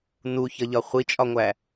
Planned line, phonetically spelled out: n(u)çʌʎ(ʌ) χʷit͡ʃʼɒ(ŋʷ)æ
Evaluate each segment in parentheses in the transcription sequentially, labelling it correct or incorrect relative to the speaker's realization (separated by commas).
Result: correct, incorrect, correct